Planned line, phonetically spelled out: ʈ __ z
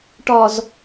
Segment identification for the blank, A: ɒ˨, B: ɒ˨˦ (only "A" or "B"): A